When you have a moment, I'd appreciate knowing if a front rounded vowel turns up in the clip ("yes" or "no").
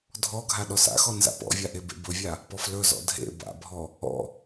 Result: no